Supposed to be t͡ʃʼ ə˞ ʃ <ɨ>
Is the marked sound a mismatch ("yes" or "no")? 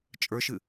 no